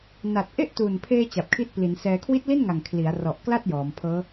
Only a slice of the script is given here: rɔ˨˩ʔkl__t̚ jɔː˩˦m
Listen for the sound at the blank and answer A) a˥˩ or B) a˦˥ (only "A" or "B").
A